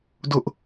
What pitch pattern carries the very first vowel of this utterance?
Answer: high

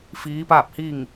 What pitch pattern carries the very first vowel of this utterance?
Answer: rising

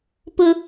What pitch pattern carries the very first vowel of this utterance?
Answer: high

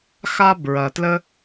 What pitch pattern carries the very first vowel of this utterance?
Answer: high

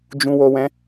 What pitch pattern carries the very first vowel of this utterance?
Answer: low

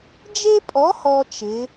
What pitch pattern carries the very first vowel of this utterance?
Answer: high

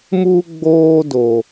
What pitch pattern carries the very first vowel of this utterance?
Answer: high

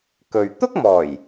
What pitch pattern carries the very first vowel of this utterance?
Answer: low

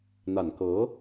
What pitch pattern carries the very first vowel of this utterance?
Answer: low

